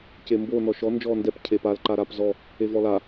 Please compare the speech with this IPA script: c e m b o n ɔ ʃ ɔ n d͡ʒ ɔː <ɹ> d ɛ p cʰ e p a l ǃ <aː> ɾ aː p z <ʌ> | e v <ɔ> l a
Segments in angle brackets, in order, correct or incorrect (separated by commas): incorrect, incorrect, incorrect, correct